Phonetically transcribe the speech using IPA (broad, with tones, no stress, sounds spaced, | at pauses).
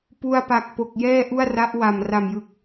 p u˧ a̯ p a˨˩ k̚ p o˨˩ k̚ j ɛː˥˩ ʔ u˥˩ a̯ r a˦˥ ʔ w a˨˩ m r a˨˩ m j ɯ˨˩ k̚